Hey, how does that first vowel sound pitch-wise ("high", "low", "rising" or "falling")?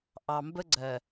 low